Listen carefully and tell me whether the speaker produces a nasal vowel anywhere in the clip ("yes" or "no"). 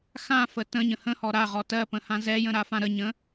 yes